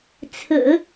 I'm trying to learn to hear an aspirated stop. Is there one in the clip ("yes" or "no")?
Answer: yes